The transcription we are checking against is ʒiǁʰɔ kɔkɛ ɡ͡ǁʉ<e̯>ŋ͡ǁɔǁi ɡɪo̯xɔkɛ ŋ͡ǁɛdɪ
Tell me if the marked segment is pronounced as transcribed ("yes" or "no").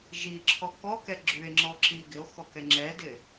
yes